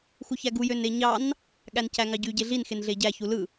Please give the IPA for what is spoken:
x u ç æ ɡ u j ø n e ɲ ɑ n | ɠ æ n c æ ŋ ɑ ɟ y ɟ e ɮ i n x e n ɮ e ɟ æ ç u l ɯ

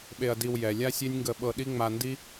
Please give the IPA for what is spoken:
ɓ e˨ ɐ̯ d i˨ w j ɛ˩ lʲ a˥ sʲ e˦ nʲ ŋ ɡ ə˨ ɓ ɤ˨ ɗ i˦ ŋ͡m a˨ n d i˦

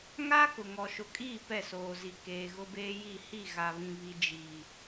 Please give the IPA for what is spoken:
ŋ a˦ k ʊ˨ ŋ ɔ˨ ʃ ʊ˨ kʼ iː˦˨ p ɛ˦˨ s oː˨ z i˨ k eː˨ ɣ ʊ˦ b eː˦ j i˦˨ h i˦˨ ɣ a˨ β ĩ˨ β i˨ d͡ʒ iː˨

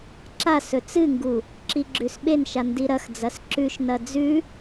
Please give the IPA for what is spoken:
ǁ a s ɵ t͡s ɨ ŋ ɡ u | ǁ i ɡ͡ǁ ʉ s ɓ e n ʃ a n d i ɾ ɐ x d͡z ɐ s ǁ ʉ ʃ n ɐ d͡z ʉ

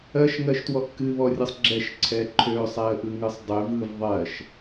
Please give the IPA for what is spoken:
ɜ ʃ ŋ ɜ ʃ t w ɔ ʔ k ɨ β ɔ rʲ ɯ sˤ ɡ͡ǁ ɛ ʃ ǀʰ ɛ ǃʰ ø sˤ ɛ ə̯ ʔ ɯ ŋ ɯ sˤ dˤ ø v ɯ v ðˤ ɜ ʃ

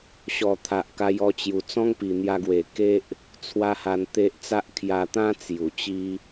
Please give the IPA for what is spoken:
ɕ ɔ˨˩ t̪ʰ a˨ ʔ k a˧ j ɔ˧ t͡ɕ j u˨˩ t͡s ɔ̃˦ ŋ p i˨˩ n̪ j a˧ ɡ w e˨˩ k e˦ ʔ | t͡sʰ w a˦ h a˧ n t̪ e˦ ʔ t͡s a˦ ʔ kʰ j a˧ t̪ ã˦ t͡s j u˨˩ t͡ɕ i˦

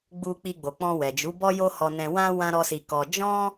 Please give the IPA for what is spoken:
ɡ͡b u˧ k͡p i˧ ɡ͡b o˨ k͡p ɔ̃˧ w ɛ˨ d͡ʒ u˨˦ b ɔ˦ j o˦ h ɔ˧ n ɛ̃˧ w ã˦ w ã˦ ɾ ɔ˦ s i˧ k ɔ˧ d͡ʒ ɔ̃˦

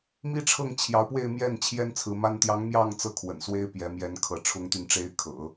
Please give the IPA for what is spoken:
m i˥ ʈ͡ʂʰ ɤ˥˩ ŋ t͡ɕʰ j ɑ˧˥ ʊ̯ p w e˥˧ ɪ̯ m j ɛ˥˩ n t͡ɕʰ j ɛ˥ n t͡sʰ ɹ̩˧˥ m a˥ n t̪ j ɑ˧˥ ŋ m j ɑ˥˧ ŋ t͡s ɤ˥˩ kʰ w ə̰˨˩ n s w e˥ ɪ̯ p j ɛ˧˥ m j ɛ˧˥ n kʰ ɤ˧˥ ʈ͡ʂʰ ʊ˥ ŋ t̪ y˥˩ n ʈ͡ʂ e˥ ɪ̯ kʰ ɤ̰˨˩˦

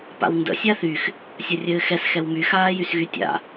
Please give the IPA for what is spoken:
p a̰ w n d ə̰ sʲ a θ y x | sʲ ɐ rʲ ɘː x ɛ s x ɛ w m y x aː j y s ɣ y tʲ a̰

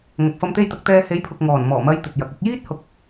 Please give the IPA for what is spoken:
ŋ ɐ˨ k̚ f ɐ˧ m t̪ e˧ j t̪ ɐ˨ k̚ t̪ ɛː˧ h e˨˥ j pʰ ʊ˨ k̚ ŋ ɔː˨˩ n m ɔː˨˩ m ɐ˧ j t̪ ɵ˨ t̚ j ɐ˨ k̚ ʊ˥ k̚ j iː˥ t̚ h ʊ˨˥ k̚

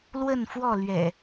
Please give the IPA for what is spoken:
l w ə˥˨ n f w ɔ˥˨ l ɥ ɛ̰˨˩

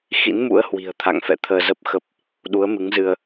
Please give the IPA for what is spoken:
x ḭ˧˥ n m ṵ˧˥ ə̯ h w i̤˨˩ ə̯ t̪ʰ a̰˧˨ ŋ f ɛ̰˧˨ t̪ʰ əː˧ z ə˦˥ p̚ x ə˦˥ p̚ | ɗ u˨˦ ə̯ m ɨ˨˦ ŋ z ɨ˧ ə̯

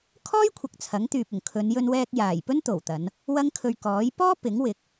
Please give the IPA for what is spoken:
kʰ ɔː˥ j kʷʰ ɐ˨ k̚ t͡sʰ ɐ˨˥ ŋ t̪ yː˨ p̚ ʊ˨˩ ŋ kʰ ɵ˨˧ n j ɵ˧ n w ɛː˧ k̚ j aː˨˩ j p ɵ˥ n t̪ o˨˩ w t̪ ɐ˨˧ n | w ɐ˥ ŋ kʰ ɵ˧ ɥ k ɔː˨˥ j p ɔː˥ p ɪ˨˥ ŋ w ɪ˨˥ k̚

